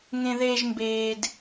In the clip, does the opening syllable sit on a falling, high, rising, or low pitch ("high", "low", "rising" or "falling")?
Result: high